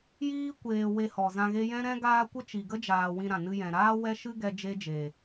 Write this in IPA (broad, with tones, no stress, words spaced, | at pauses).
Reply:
jiː˦ kʷeː˧ we˧hɔ˨zã˧ɣe˦ jɛ̃˦ɾɛ̃˦ɡaː˦kʷə˦ t͡ʃi˨ɡə˦d͡ʒaː˨ wĩ˧ɾã˨nɨ˧jɛ̃˨ ɾaː˦ wɛ˦ʃɨ˦ ɡɛ˦ d͡ʒe˦d͡ʒe˨